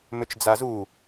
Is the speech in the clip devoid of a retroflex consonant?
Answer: yes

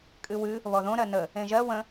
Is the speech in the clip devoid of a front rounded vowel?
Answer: yes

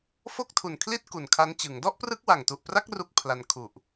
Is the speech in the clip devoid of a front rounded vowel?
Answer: yes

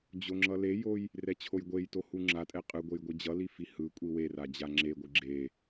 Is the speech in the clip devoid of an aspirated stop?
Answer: no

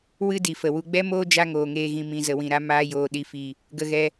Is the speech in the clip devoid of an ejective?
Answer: yes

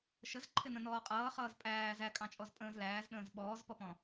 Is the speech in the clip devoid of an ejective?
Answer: no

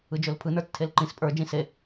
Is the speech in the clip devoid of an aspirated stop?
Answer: no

